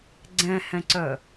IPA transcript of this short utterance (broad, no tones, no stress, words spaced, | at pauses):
ɡ͡ǀɛ̃hɛ̃ǀœ